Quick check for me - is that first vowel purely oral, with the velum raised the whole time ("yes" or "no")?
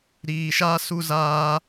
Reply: yes